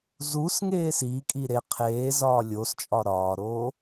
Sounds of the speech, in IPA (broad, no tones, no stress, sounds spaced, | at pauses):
z u s ŋ eː s iː kʼ i ɾ e qʰ eː z ɒː lʲ o s t͡ʃʼ ɒ ɾ ɒː ɾ oː